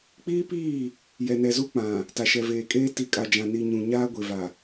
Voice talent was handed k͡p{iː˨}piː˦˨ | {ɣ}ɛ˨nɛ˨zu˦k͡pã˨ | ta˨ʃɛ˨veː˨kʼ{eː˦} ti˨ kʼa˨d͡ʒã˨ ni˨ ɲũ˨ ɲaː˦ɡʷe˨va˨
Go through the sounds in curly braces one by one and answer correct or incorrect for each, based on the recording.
incorrect: iː˦, incorrect: j, correct

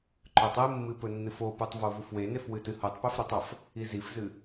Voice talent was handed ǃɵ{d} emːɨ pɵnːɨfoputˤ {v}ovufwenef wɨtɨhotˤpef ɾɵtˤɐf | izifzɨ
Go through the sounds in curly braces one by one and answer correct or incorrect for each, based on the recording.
incorrect: tˤ, correct

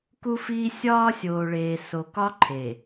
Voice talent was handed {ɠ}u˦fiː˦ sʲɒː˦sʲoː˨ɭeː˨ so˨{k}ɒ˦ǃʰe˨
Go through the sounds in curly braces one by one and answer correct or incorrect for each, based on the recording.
incorrect: k, correct

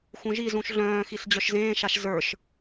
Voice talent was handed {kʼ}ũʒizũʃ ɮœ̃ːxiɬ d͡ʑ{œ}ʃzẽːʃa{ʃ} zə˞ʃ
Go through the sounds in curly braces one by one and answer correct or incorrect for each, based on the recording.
incorrect: x, correct, correct

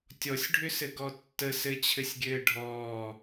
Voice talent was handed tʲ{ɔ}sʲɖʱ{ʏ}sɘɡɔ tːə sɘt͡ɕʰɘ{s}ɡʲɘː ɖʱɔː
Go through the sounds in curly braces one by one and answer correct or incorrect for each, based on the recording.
correct, correct, incorrect: sʲ

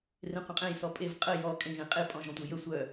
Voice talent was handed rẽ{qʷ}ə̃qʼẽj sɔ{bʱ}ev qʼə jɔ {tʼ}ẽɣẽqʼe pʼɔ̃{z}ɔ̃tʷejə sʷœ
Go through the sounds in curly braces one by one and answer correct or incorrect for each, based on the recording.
correct, incorrect: pʼ, incorrect: kʼ, incorrect: ʒ

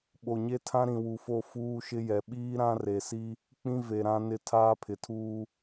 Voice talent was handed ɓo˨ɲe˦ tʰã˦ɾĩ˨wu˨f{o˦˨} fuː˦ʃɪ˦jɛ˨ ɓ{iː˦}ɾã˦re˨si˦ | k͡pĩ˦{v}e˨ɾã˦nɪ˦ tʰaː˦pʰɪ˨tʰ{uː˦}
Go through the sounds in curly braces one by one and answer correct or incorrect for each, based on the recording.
correct, correct, correct, correct

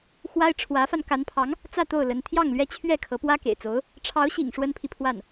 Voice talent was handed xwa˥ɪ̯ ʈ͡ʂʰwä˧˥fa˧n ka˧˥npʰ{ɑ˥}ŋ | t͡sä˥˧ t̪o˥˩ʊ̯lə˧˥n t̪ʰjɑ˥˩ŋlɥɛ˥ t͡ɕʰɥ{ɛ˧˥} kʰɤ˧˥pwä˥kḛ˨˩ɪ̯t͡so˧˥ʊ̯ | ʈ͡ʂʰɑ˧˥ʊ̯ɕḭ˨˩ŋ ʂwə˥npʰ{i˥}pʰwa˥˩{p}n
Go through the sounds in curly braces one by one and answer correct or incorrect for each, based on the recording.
incorrect: ɑ˧˥, incorrect: ɛ˥˩, incorrect: i˨, incorrect: none

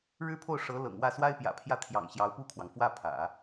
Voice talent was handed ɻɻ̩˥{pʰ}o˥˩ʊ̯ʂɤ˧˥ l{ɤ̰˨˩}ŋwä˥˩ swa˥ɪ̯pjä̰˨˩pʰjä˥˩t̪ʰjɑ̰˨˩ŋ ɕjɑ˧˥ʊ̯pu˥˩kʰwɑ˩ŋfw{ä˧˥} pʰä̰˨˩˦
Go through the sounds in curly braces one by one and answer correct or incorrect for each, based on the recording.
correct, correct, incorrect: ä˥˩

